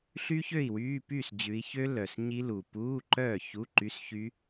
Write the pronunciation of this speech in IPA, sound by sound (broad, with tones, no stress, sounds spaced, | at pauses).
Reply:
ɬ y˦˥ ç ø˥˩ i̯ w yː˧˥˧ p yː˥˩ s d͡ʑ ʉ˨˦ i̯ ç ø˦˥ l œ˨˩ s ɲ i˦˥ l u˨˩ p uː˧˥˧ ǃ œː˥˩ ç u˧˥˧ ǃ y˧˥˧ s ç y˦˥